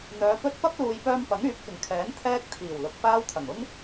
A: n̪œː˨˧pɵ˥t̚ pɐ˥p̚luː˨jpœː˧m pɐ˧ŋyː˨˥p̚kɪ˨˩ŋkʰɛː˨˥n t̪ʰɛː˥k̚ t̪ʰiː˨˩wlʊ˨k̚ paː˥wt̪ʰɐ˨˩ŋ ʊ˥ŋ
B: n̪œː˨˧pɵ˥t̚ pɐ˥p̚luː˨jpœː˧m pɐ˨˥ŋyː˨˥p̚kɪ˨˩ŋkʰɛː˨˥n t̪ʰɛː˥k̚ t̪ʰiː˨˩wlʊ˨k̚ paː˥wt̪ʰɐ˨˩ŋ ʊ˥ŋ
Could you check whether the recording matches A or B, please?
B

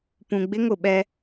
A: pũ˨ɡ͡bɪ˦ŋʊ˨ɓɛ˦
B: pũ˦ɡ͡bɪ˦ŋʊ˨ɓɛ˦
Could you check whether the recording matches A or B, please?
A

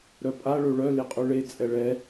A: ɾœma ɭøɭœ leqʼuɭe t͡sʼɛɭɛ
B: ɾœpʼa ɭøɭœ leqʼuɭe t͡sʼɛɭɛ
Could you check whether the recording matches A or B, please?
B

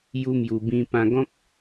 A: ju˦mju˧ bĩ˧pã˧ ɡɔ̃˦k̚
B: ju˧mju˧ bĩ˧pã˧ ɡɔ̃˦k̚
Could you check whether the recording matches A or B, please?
A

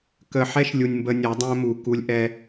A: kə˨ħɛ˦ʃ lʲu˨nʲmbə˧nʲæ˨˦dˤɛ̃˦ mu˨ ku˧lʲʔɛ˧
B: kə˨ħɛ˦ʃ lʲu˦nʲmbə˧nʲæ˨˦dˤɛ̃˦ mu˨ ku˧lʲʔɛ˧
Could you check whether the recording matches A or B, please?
A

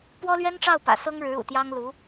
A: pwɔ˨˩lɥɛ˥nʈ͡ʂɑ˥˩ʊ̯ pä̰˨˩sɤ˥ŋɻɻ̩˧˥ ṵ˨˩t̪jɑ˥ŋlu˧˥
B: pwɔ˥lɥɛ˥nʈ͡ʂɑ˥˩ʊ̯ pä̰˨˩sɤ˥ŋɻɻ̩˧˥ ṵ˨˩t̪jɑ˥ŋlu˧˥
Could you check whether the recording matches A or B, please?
B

